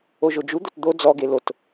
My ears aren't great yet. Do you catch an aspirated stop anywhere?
no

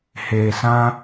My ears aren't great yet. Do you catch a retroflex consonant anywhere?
no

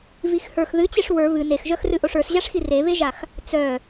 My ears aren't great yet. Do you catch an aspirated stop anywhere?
no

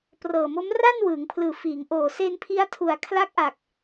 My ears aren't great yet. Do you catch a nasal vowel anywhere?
no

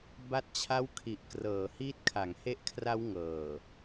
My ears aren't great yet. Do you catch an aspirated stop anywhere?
yes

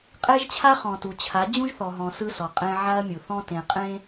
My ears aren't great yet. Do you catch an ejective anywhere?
yes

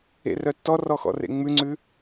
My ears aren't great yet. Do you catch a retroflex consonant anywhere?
no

